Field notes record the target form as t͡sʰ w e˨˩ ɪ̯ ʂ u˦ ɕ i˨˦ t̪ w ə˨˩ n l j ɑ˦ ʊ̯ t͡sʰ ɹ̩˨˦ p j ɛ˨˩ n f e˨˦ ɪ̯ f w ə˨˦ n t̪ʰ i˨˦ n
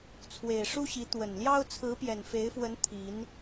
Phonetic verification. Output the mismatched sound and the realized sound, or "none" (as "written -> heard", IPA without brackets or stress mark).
none